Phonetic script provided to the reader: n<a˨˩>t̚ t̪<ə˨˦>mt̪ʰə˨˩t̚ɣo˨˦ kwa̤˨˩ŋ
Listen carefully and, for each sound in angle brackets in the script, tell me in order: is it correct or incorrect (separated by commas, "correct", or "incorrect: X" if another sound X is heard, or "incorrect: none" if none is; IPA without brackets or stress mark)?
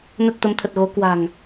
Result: incorrect: ə˨˩, correct